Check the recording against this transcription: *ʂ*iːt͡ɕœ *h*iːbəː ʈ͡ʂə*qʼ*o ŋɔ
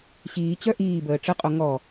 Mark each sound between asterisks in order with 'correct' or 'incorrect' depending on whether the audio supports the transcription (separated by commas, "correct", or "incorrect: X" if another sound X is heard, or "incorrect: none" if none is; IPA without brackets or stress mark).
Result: incorrect: ɕ, incorrect: ʔ, correct